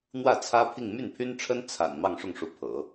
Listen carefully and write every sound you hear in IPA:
n̪ w ä˥˩ t͡sʰ ä˥ pʰ i˥˧ ŋ m y˥˩ n pʰ y˥ n ʈ͡ʂʰ ə˥ n t͡sʰ a̰˨˩ n m ɑ˥˧ ŋ ʂ ʊ˥˩ ŋ ʂ u˧˥ pʰ ɤ̰˨˩˦

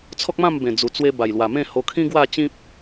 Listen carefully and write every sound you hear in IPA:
t͡sʰ ɔ˦ k̚ m ã˥˧ m b ẽ˨˩ d͡z u˨˩ t͡s w e˧ b a˨˩ j l w a˨˩ m ẽ˥˧ h o˧ kʰ ĩ˦ ɡ w a˥˧ t͡ɕ ĩ˦ p̚

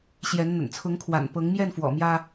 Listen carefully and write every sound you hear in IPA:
ɕ j ɛ˨˦ n n̪ ə̰˨˩ n t͡sʰ ʊ˨˦ ŋ kʰ w a̰˨˩ n p ɤ˨˦ ŋ m j ɛ˥˨ n f w ɔ̰˨˩ m j ä˦

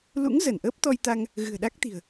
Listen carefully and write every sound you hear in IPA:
l ṵ˧˥ ŋ z ə˧˩ n ʔ əː˦˥ p̚ t̪ ɔ˧ j t̪ a˧ ŋ | ɣ ɨ̤˨˩ ə̯ ɗ a˦˥ k̚ t̪ i̤˨˩ ə̯

